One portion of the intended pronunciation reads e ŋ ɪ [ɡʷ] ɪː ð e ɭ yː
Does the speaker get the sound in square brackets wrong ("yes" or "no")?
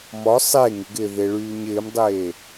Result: yes